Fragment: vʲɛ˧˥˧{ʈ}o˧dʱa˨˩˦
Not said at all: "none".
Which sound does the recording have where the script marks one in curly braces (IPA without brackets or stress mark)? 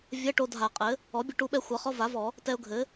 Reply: ʈ